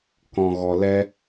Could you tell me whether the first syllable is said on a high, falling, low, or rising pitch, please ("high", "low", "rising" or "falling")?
low